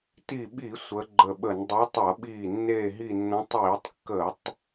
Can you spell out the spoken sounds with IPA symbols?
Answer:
t i˧˩ ɓ i˧˩˧ sʷ ə˨˦ ɡ͡ǃ ə˧˩ ɓ ə˧˩˧ n dˤ e˨˦ tˤ ʌ˧˩˧ ɓ iː˧˩ nː eː˧˩ ɦ i˧˩ nː ə̃˨˦ tˤ iː˧˩˧ tˤ kː ə˧˩˧ tˤ

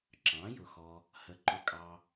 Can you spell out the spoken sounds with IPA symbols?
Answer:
ǁ ɑ̃˩˥ j ʊ˨ x ɔ˨ | h ə˩˥ ǃ ʊ˨ kʼ ɑ˨

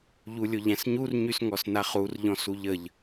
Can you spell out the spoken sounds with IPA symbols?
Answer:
ʎ u lʲ o ʎ æ̃ s ɲ u r ɲ y s ŋ ɔ s n a χ u r ʎ ɔ̃ s u ʎ ə ʎ

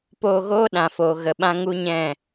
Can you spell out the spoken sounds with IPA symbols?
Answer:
p oː˧ ɣ oː˦ ɗ ã˨ f oː˨ ɣ ə˨ ɓ ã˦ ŋ u˦ ɲ ɛ̃˦˨

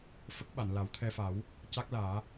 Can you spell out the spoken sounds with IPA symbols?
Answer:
f ə˦˥ k̚ ɓ a˨˩˨ n l a˨˩˦ w t̪ʰ ɛ˧ f a˨˩˦ w | c a˦˥ k̚ l aː˨˩˦

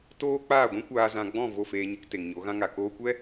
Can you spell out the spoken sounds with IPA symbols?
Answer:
t oː˦ k͡p aː˦˨ ɡʷ ĩ˦ kʷ aː˧ z ã˧ ɡ͡b ɔ̃˦˨ v o˦˨ f eː˧ ɲ ɨ˧ k t e˨ ŋ ɲ o˨˦ ɣ ã˦ ŋ a˨ k oː˧ kʷ ɛ˦

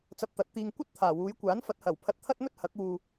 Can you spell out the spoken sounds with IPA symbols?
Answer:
t͡s ɐ˧ p̚ t̪ ɐ˨˥ t̚ t̪ iː˨ ŋ kʷ ɐ˥ t̚ t̪ʰ aː˨˩ w uː˨˧ j kʷ aː˨˥ n f ɐ˨˥ t̚ h ɐ˨˩ w pʰ ɐ˧ t̚ t̪ʰ ɐ˥ t̚ m ɵ˥ t̚ h ɐ˨˥ k̚ w uː˧

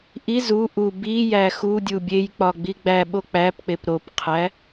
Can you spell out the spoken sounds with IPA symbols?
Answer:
ʔ i z u ʔ u b i j æ x u dʲ u bʲ e j k͡p ɒ ɡ͡b i ɡ͡b æ ɓ o k͡p æ p k͡p e p ɾ o p qʰ æ

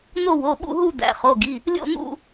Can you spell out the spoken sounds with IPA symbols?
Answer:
n̪ o˥˧ w o˩˧˩ ɓ ṵ˥˧ ɦ u˥˧ d̪ æ̰˩˧˩ χ o˩˧˩ ɡ i˩˧˩ | lʲ o̰˥˧ n̪ ṵ˥˧

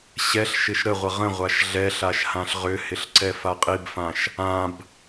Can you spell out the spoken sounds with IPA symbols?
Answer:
ɕ ɛ ɬ ʃ ɪ ʃ ɾ ə ʁʷ ə ʁ ə̃ ʁʷ a ʃ ɮ ɛ ɬ a ʃ h ã ɬ ʁ ʏ h ɪ ɬ ǀ ɛ f a qʼ i b f ã ʃ | ã b

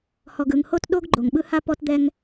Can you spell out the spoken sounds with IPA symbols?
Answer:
h ɔ˨ ɡ ɯ˨ ŋ h o˦ t ɗ o˦ ɡ ɡ͡ǃ o˨ ŋ ɓ ɯ˦ h a˦ p ɔ˦ t d̪ ɛ˦ ŋ

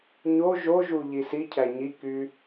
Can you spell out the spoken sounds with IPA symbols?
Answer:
ɲ o ʒ o ʒ u ʎ i s i cʰ æ ɲ i k y

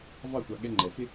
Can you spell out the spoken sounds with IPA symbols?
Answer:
v ɑ˦˨ xʷ ɑ˨ ɠ ɛ˦ ŋ͡ǃ ɛ˨ f ɪ˦

